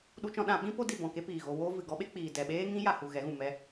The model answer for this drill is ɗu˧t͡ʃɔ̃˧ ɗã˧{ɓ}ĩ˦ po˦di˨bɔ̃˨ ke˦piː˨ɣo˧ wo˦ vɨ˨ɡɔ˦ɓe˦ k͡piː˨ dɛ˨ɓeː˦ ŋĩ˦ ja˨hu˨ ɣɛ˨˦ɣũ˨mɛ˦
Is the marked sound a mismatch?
no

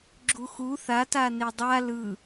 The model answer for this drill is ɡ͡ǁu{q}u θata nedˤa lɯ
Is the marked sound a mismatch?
yes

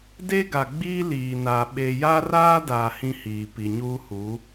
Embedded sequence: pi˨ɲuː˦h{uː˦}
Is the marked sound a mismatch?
yes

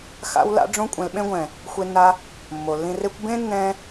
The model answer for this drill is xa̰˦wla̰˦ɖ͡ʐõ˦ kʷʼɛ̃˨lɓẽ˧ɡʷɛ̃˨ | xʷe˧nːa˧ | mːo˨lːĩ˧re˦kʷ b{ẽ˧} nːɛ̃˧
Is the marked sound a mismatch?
yes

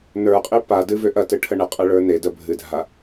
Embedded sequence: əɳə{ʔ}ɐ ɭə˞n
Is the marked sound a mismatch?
yes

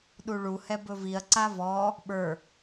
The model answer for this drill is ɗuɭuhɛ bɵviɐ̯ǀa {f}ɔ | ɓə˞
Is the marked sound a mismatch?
yes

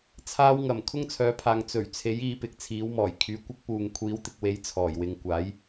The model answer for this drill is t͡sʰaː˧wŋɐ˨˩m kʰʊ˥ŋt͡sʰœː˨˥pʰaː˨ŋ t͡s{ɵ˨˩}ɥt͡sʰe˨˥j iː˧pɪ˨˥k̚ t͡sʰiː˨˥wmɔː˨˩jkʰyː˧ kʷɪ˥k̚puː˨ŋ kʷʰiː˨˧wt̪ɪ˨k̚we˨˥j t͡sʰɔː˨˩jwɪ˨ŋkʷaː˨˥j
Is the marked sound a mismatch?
no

